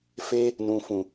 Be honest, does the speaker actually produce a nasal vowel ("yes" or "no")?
yes